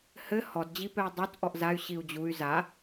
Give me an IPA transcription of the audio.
h ɘ h ɔ d d͡ʑ i p ɛ y̯ dˤ o t ʔ ɔ ʔ z a y̯ ɕ i u̯ d͡ʑ u y̯ z a

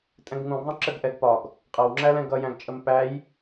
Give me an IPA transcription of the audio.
tʼ ɛ̃ ɡ ŋ ũ ɡ ðˤ ə̃ ǁ ə ɡ ʔ ɛ ɡ p ɒ ɡ | qʼ ʌ w ŋ͡ǁ æ l ɛ̃ ɡ ʌ j æ̃ ɡ t͡ʃʼ ə m p æ j

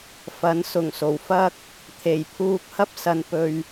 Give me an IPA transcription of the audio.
f ɐ˨˥ n s ʊ˨˩ ŋ s o˨˩ w f ɐ˥ k̚ | t̪ʰ e˨˩ j pʰ uː˧ k̚ h ɐ˥ p̚ s ɐ˧ n p ɵ˧ ɥ

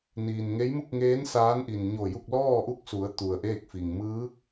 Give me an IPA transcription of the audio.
n iː˩ n ŋ e˧˥ j m u˥˨ k̚ ŋ eː˧˥ n s aː˧˥ n ʔ i˩ n ɲ o˧˩ j u˥˨ k̚ l ɔː˥˨ ʔ u˥˨ k̚ s u˩˧ ə̯ t̪ u˩ ə̯ ʔ eː˥˨ k̚ f i˩ ŋ m ɯː˧˥ k̚

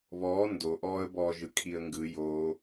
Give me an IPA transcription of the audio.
β ɔː n d o ʔ ɔː ə̯ b ɔː ʒ ɯ kʰ i ə̯ ŋ ɡ ɯ j o

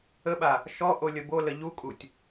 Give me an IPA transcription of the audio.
ə ɓ a | ʃ ɔ ʔ o lʲ ə b o l ə ʎ u kʼ u tʲ

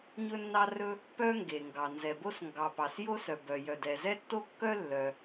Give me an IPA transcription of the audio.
ɲ ɵ˥ nː ɑ˥ r ɵ˥ | p œ˥ ŋ ɡ e˩ ŋ ɡ ɑ˩ n z ɛ˩ b o˥ s ŋ ɡ ɑ˩ p ɑ˩ s j o˥ s œ˩ b œ˩ j œ˩ d ɛ˩ z ɛ˥ tː o˥ kː œ˥ lː œ˩

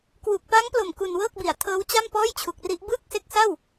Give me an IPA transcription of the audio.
k w u˨˩ k̚ p a˦˥ ŋ p l o˨˩ m k u˧ n w ɤː˥˩ k̚ b i˨˩ a̯ tʰ ɤː˦˥ w t͡ɕ a˥˩ m p ɔː˥˩ j t͡ɕʰ u˨˩ k̚ r i˦˥ ʔ b ɯː˥˩ k̚ s e˦˥ k̚ s a˥˩ w

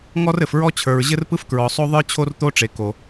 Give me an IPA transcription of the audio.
ŋ ɔ˥ r ɘ˩ f ɹ ɔ˥ t͡ɕʰ ə˞˩ ɹ ʑ ɘ˥ r p ɯ˥ f k ɹ ɔ˩ sˤ o˥ ðˤ ə˞˥ t͡ɕʰ o˥ r t̪ o˥ ʈ͡ʂ e˩ k o˩

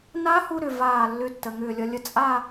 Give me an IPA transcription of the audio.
n a˧˥ h u˧ ɾ ʏ˧ v aː˧˩ lː ʏ˧ tː ə˩˧˩ ŋ ʏː˧˩ lʲ ʌ˧ lʲ ə˥˩ t͡sʼ a˥˧

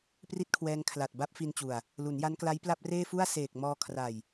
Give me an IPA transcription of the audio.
p r i˥˩ t̚ kʰ w ɛː˧ ŋ kʰ l a˨˩ t̚ b a˦˥ p̚ f i˧ n t͡ɕ u˨˩ a̯ | l u˩˦ n j a˦˥ n k l a˦˥ j p l a˥˩ p̚ r eː˥˩ f u˥˩ a̯ s eː˨˩ k̚ m ɔː˧ kʰ r a˨˩ j

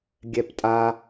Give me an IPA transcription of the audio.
ɡʲ ɛ p tʼ a

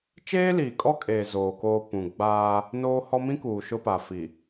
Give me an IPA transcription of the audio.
t͡ʃ eː˦ l iː˨ kʼ ɔ˦ kʼ eː˨ z oː˨ k oː˨ p ũ˨ ɡ͡b aː˦ | n oː˦ h ɔ˦ m ĩ˦ k uː˨ ʃ ʊ˦ p a˨ f i˨

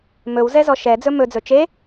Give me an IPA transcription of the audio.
m ɵ w z ɛ z ɔ ʃ ɛ d͡z ɵ m ɵ d͡z ɵ t͡ʃ e

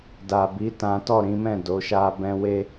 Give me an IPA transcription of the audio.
d a˨ b i˨˦ t ã˦ t ɔ˦˨ ɾ ĩ˨˦ m ɛ̃˦˨ d o˨˦ ʃ a˦ b ɛ̃˦ w e˦

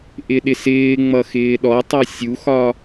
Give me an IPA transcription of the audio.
ʔ ɪ ɗ ɪ s ɪː ŋ͡m ʌ x ɪː ɗ ɔ tˤ ʌ sʲ u x ɒ

